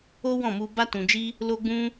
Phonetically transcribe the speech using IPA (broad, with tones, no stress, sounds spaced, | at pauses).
o˦ w ɔ̃˦˨ m u˧ b a˦ t ũ˧ d͡ʒ i˦ | l o˦ ɡ͡b ũ˦